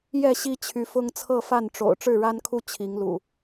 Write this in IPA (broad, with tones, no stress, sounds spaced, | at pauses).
j ɛ˥˨ ɕ i˦ t͡ɕʰ y˨˦ f ʊ˦ ŋ t͡sʰ ɤ˥˨ f a˥˨ n ʈ͡ʂ o̰˨˩ ʊ̯ ʈ͡ʂ ɻ̩˥˨ ɻ a˦ n kʰ u˦ t͡ɕʰ i˨˦ ŋ l ṵ˨˩